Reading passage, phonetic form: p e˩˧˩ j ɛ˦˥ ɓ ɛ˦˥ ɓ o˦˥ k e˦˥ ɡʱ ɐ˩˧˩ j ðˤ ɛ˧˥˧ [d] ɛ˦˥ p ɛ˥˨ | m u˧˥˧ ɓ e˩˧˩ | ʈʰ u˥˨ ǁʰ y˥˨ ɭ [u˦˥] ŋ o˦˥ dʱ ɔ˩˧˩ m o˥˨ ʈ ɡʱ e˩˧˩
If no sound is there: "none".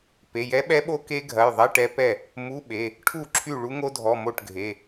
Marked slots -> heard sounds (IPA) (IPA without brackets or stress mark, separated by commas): ʈ, u˦˥